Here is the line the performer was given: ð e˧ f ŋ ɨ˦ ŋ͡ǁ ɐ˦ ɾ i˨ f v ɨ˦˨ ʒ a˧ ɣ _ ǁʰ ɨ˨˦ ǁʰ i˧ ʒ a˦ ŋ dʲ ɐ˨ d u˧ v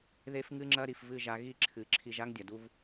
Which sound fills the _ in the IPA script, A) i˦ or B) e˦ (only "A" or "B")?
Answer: A